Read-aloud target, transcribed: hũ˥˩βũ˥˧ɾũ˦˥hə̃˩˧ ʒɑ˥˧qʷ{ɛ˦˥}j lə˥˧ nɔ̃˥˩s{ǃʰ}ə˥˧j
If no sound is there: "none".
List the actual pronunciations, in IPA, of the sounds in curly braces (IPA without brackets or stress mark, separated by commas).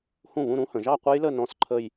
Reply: ɛ˦˥, ǃʰ